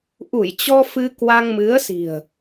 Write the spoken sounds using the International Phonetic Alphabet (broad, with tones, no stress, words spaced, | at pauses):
ʔu˧˩j t͡ɕɔ˧ fɨ˧kwa˧ŋmɨ˨˦ə̯si̤˨˩ə̯